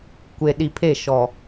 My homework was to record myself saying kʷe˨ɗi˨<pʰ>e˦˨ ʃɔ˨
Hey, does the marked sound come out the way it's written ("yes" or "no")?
yes